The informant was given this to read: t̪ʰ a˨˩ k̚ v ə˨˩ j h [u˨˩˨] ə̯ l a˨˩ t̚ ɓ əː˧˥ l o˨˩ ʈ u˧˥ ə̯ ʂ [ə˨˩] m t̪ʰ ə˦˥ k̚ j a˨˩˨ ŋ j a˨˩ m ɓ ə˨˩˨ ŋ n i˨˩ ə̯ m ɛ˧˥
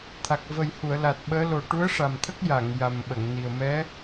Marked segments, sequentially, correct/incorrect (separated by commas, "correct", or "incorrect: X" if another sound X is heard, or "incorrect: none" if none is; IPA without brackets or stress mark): correct, incorrect: a˨˩